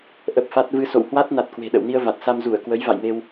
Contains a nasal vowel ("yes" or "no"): no